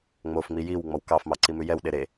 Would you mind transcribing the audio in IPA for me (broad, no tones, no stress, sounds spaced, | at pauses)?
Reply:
ŋ͡m o f ŋ͡m i j i w ŋ͡m ɔ w k ɑ f m ɑ ǀ i m ʉ j ɛ w ɗ e ɾ e